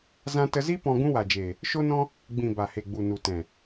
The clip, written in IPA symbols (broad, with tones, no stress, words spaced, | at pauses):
zã˧tə˧zi˦ pɔ̃˧ ɡũ˦wa˨d͡ʒeː˨ | ʃo˦nɔ̃˦ | ɡ͡bĩ˨ ba˨he˨ ɡ͡bu˨nu˨ tɛ̃˨